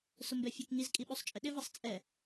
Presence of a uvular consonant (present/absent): absent